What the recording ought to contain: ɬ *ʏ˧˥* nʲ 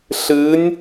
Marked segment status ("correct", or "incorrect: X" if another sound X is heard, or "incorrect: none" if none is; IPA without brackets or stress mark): incorrect: ɨ˧˥